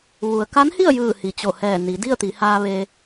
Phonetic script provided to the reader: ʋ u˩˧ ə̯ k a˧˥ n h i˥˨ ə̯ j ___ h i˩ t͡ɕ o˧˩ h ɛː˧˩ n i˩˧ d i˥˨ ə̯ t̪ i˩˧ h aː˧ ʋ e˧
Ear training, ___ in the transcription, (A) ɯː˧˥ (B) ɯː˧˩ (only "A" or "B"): B